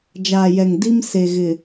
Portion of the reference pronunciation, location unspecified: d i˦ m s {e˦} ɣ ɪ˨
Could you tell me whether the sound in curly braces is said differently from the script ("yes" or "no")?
yes